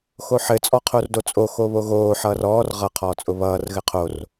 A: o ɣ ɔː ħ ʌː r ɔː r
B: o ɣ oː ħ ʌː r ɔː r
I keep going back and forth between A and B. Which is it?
B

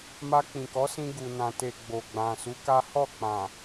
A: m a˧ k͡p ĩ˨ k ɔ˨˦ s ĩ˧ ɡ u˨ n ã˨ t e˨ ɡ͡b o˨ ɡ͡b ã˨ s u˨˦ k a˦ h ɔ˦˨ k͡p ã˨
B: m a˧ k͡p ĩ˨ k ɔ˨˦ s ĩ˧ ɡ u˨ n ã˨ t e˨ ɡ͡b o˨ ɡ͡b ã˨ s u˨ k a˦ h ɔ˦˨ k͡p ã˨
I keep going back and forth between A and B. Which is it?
A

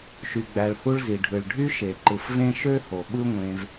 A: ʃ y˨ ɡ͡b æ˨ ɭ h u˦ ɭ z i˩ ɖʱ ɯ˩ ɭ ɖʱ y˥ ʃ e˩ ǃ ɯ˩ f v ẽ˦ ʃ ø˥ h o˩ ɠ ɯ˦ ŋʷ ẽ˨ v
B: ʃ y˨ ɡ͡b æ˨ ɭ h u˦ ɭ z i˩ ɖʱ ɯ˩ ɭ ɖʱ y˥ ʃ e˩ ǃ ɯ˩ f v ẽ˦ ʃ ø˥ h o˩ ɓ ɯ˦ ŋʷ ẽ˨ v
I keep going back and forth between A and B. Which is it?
B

